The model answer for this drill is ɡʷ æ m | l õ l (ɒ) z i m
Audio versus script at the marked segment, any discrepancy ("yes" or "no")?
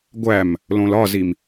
no